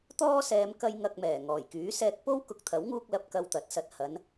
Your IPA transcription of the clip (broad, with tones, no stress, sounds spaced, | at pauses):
t̪ ɔː˥ s ɛː˨˧ m k ɐ˧ j ŋ ɐ˨ k̚ m ɛː˨˩ ŋ ɔː˨˩ j k yː˨˥ s ɛː˧ k̚ p o˥ w k ʊ˨ k̚ t̪ʰ ɐ˨˥ w ŋ uː˧ k̚ l ɐ˧ p̚ k ɐ˧ w t̪ ɐ˨˥ t̚ s ɐ˨ t̚ h ɐ˨˧ n